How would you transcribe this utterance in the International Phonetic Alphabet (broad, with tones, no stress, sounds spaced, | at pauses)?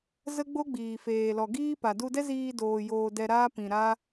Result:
z ə˦ ɡ͡b o˦ ɡ͡b iː˨ f eː˨ l ɔ˨ ɡ iː˦ p a˨ d u˧ d ɛ˦ z iː˧ d oː˨ j oː˧ d ɛ˧ ɾ aː˦ p ĩ˨ ɾ a˦